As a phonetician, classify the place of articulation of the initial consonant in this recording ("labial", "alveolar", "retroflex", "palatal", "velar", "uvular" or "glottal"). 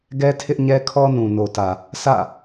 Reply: velar